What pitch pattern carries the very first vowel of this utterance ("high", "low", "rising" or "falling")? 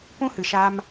high